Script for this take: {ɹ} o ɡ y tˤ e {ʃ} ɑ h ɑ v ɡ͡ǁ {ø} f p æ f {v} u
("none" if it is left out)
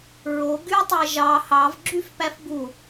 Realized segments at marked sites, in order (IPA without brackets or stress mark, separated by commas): ɹ, ʒ, y, b